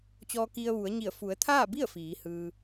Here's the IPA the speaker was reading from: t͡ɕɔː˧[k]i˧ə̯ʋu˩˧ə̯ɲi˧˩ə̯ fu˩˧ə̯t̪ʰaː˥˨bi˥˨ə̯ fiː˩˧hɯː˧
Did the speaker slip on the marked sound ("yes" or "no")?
no